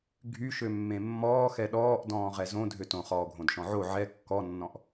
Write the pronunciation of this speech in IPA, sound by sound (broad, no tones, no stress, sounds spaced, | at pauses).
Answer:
ɡʱ y ʃ ø mː ẽ mː ɔː x ɛ ɗ ɔː ʔ d ɔ̃ː ʁ ɛ z õ dʱ ø t õ χ ɔː ɡʱ õ d ʃ ɔ̃ ʕ o ʕ ɛ kː ɔ nː ɔ̃ ʔ